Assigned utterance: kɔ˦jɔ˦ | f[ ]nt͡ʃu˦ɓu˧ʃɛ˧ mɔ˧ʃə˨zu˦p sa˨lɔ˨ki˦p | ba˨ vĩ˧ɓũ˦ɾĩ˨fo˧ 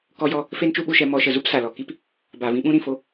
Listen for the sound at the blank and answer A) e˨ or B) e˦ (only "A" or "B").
B